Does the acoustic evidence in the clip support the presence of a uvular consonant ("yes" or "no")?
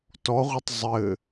yes